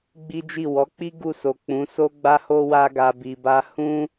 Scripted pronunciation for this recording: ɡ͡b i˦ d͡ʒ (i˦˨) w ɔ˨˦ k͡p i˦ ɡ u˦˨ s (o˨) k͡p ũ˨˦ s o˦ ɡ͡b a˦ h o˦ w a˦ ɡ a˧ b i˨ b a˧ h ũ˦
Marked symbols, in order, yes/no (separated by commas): yes, yes